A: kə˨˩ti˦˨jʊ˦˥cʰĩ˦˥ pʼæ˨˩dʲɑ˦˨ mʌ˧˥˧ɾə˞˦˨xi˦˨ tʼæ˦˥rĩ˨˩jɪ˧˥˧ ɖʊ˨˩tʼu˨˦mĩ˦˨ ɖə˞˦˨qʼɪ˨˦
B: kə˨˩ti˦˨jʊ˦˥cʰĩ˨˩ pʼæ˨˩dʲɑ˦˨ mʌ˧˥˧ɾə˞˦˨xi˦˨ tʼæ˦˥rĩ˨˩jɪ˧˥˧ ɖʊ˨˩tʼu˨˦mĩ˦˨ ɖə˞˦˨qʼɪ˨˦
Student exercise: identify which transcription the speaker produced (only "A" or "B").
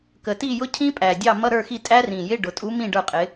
A